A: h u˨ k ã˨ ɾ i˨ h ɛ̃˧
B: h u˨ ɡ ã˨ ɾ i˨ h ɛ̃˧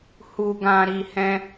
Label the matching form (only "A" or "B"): B